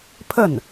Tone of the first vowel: falling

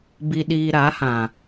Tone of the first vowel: low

